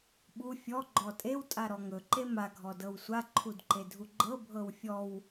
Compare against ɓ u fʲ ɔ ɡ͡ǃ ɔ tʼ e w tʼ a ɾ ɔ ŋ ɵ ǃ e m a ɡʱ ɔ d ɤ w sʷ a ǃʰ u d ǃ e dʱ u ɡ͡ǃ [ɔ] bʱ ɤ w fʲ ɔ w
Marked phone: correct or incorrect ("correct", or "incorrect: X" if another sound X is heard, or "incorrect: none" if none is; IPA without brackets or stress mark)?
incorrect: ɤ